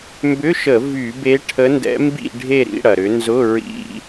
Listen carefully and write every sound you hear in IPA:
m b ʏ˧˥˧ ʃ ə˧˩˧ v y˧˩˧ b e˧˥ ʈʰ ə˧˥ n d ɛ̰˧˥ m b ḭ˥˧ ɖʱ e˥˧ ɾ ḭ˥˧ ɽ ɐ˩ ɾ ʏ˩˧ n z ʊ˧˥˧ ɹ ḭ˧˥˧

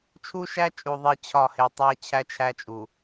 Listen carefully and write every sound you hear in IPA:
t͡ʃʰ u˦ ʃ æ˦ t͡ʃʼ u˨ ðˤ e˦ t͡ɕʰ ɒ˦˨ h e˨ tˤ æ˦ t͡ɕʰ æ˦ t͡ʃʰ æ˦ t͡ʃʼ u˨

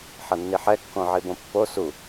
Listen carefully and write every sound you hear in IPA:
ħ ʌ nː i ħ ɛ kː õ ʕ i b õ pː o s u

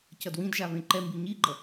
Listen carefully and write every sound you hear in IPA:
c ʌ d w ĩ d ʒ a β ẽ ǃ ɛ m b i ɲ i ɡ͡ǃ ʌ

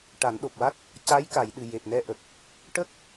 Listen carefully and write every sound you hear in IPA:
ʈ a˨˩˦ n ɗ o˨˩ p̚ w a˦˥ t̚ | c a˧˥ j k a˨˩˨ j ɗ ɨ˨˩ j e˨˩ p̚ n ɛ˧ ʔ ə˨˩ k̚ | ʈ ə˦˥ k̚

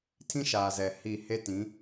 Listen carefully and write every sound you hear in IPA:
tʰ ĩ˦ ʃ aː˨ z ɛ˨ h i˦˨ h e˦ t ĩ˨˦

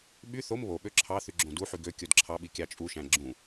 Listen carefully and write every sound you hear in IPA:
ɓ y θ o m β o ɓ ø ǁʰ ɑ θ y ɡ͡ǁ õ d u ħ y ɡ ø kʲ o d ǁʰ ɑ ɓ i kʲ ɑ t͡ʃʼ u ʃ æ̃ ɡ͡ǁ ũ

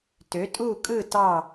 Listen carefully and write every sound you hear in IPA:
t ø˩˥ tʼ u˥˨ kʼ ɯ˥˨ t ɑ˥˨

